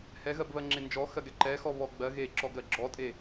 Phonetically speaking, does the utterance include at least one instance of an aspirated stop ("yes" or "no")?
no